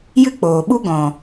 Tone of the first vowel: high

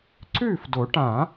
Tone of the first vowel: falling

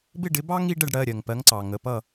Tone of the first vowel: falling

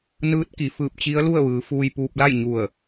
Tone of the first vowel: rising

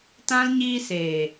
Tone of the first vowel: high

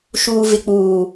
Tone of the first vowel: low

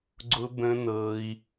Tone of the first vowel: high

